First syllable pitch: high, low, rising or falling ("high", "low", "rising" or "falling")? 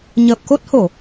low